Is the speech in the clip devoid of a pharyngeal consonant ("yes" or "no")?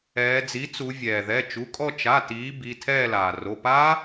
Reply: yes